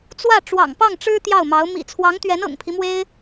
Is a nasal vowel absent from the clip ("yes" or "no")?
yes